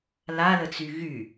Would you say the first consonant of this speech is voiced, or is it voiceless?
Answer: voiced